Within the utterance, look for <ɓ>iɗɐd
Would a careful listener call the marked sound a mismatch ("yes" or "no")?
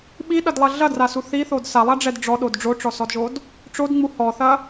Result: no